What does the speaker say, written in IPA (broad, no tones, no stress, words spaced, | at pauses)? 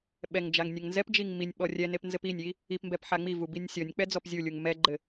ɓɛŋd͡ʒaŋ nʲɛŋnzɛpd͡ʒiŋ minʲ ɓɔrʲɛnep nzɘpinʲi | ipmbɛp ħaŋ͡mivu binʲsʲɔnʲk͡pɛ d͡zɔpzʲulʲuŋ mɛɡ͡ǃɘ